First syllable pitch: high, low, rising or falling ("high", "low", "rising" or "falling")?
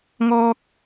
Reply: high